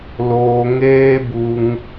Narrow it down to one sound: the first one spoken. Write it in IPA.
l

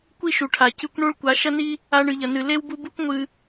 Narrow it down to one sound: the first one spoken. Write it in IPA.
kʷ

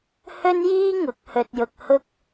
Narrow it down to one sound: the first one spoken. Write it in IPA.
h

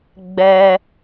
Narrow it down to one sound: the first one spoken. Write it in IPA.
ɡ͡b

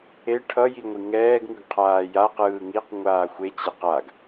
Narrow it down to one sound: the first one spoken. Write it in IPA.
e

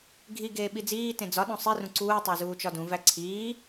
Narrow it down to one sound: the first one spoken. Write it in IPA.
ɡʱ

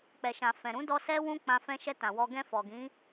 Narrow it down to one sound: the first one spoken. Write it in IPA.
k͡p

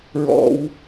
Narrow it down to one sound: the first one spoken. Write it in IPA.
ɹ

